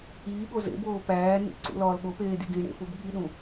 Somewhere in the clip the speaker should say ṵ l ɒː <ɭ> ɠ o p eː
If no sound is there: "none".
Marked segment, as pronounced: l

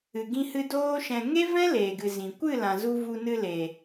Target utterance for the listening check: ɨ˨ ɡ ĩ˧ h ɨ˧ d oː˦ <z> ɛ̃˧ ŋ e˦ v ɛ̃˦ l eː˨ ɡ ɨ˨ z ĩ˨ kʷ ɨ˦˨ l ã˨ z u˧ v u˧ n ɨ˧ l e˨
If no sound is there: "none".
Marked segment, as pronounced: ʃ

